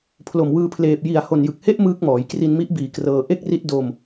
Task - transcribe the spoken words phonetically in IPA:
pʰlo˨˩mwɯː˧pʰleː˨˩p̚ ji˨˩a̯ho˨˩njɯ˨˩k̚he˦˥ʔ mɯː˦˥k̚mɔː˩˦j kri˧nmi˦˥ʔbiː˨˩ krɤː˧ ʔe˥˩k̚ri˦˥t̚ do˧m

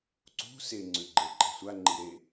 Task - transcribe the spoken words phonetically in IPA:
ǀṳ seŋ͡ǀʉɡ͡ǃe ǃe̤sʷaŋ͡ǃi ɾe

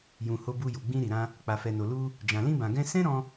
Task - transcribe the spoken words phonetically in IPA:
jũ˨ ho˧bu˧ju˨ ɡ͡bĩ˧ɾi˨ɾã˧ | k͡pa˨fɛ˨no˨ lu˧ | d͡ʒã˨lĩ˧bã˨ ɡɛ̃˧sɛ̃˦ɾɔ̃˧

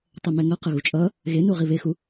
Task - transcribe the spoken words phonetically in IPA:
tˤɛmɛŋʌqʌ ɣut͡ʃʼʌ | ɣenu ʁiβexu

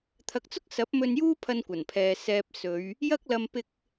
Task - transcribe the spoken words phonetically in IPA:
t̪ʰɐ˨˥k̚t͡sʊ˥k̚ sɐ˨˥p̚mɵ˧n juː˥pʰɐ˧nkʷɐ˨˩npʰɛː˨ sɛː˨p̚ sɵ˨˧ɥ | jɐ˥k̚lɐ˧m pɪ˧k̚

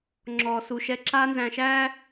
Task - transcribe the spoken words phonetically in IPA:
ŋ͡ǁɔː˨ su˨ʃɛ˦ ǁaː˦nzæ̃˨ʃæː˦

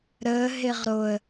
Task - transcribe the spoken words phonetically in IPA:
ɾəː ɦeʁɾoə̯

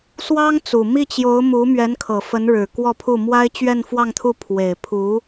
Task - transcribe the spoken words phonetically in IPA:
swɑ˥ŋt͡su˨˩ mi˥˩t͡ɕjo˧˥ʊ̯mu˧˥ mɥɛ˧˥nkʰɤ˨˩ fə˧˥nɻɻ̩˨˩ kwɔ˥˧pʰu˥˩ mwa˥ɪ̯ t͡ɕɥɛ˥˧nfwɑ˥˧ŋt̪ʰu˥˩ pʰwe˨˩ɪ̯pʰu˧˥

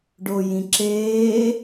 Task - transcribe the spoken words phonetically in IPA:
ɖojĩǁeː

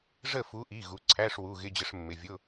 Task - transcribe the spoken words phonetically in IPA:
ʐə˦˨fu˨˦ʔi˩˧˩ ɣu˨˦ ǀʰæ˧˥˧ʂwu˩˧˩ ɣɪ˧˥˧d͡ʑə˨˦ʂ mːɪ˩˧˩vʲʊ˧˥˧

